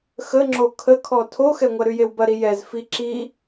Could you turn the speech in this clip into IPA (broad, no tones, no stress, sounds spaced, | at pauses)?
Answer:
x ə ŋ͡ǁ o kʰ ə kʰ ɔ tʰ o x ɛ ŋʷ ɐ ɾ y j e w b ɐ ɾ i j ɛ z f i ǁ i